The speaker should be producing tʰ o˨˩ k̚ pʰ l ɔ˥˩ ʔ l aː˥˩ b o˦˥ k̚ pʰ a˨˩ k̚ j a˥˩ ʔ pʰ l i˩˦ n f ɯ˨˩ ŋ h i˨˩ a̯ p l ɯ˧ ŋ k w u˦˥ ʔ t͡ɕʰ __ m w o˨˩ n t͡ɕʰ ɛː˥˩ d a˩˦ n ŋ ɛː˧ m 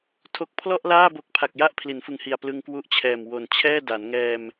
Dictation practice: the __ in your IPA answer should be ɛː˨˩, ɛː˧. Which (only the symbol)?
ɛː˨˩